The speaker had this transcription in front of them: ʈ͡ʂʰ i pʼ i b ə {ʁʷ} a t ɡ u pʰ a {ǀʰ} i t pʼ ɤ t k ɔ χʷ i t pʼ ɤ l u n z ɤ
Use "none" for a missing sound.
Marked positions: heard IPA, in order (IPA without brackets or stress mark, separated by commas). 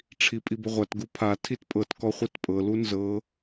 ʁʷ, tʰ